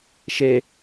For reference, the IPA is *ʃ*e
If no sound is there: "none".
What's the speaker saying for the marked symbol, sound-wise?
ʃ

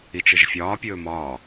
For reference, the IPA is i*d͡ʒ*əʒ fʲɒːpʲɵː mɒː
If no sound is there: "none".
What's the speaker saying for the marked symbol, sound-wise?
t͡ʃ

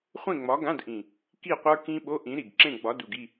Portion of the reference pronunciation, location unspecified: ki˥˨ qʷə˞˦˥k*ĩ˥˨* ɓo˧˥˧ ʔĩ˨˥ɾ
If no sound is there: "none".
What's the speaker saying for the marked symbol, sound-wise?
ĩ˦˥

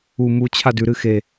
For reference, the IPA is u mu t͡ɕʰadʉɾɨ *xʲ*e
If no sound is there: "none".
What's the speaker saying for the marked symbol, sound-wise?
x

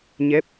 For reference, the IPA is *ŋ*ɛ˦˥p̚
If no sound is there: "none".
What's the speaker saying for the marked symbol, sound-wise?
ɲ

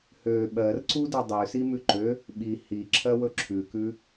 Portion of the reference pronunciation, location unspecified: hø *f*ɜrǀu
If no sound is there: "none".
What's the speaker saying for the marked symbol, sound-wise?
ɓ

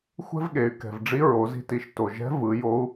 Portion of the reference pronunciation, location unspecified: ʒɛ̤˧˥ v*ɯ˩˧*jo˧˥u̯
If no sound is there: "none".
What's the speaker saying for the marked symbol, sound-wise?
ɯ˩˧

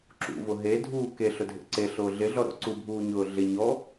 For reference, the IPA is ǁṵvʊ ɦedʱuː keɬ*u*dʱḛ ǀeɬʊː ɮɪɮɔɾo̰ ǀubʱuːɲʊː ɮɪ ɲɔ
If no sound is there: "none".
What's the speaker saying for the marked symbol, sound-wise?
ʊ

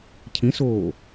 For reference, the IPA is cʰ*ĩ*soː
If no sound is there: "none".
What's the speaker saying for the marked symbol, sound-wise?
ĩ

